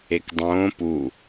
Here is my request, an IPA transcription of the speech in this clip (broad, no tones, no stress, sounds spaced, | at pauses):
e k dˤ õː p u